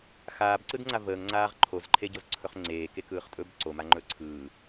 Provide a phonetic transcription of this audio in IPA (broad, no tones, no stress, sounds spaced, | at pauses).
x aː b ǀ ɯ d ŋ͡ǀ a v əː ŋ ŋ͡ǀ aː ʁ ǃʰ o z ǃʰ e ɟ o z ǀʰ ɵ χ ŋ͡ǀ eː k e k ɯː χ tʼ ɵ b ǀ o m a ŋ͡ǃ ɵ ǀʰ ɯː